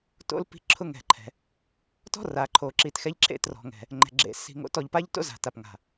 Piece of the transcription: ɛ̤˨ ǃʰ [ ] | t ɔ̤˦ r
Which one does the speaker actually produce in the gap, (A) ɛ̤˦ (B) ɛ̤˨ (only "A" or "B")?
B